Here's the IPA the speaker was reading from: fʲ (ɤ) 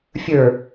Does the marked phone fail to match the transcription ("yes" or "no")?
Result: yes